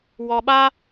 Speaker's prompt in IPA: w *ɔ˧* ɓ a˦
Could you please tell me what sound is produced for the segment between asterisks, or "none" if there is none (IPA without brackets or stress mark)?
ɔ˧